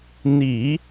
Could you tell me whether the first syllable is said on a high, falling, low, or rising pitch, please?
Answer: low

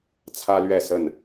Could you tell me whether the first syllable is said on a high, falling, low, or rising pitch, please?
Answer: high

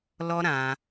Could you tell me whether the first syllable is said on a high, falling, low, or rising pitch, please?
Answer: high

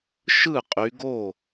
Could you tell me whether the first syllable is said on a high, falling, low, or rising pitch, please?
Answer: falling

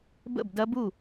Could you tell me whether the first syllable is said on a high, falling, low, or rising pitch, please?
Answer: falling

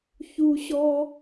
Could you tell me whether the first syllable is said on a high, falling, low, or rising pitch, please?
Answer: high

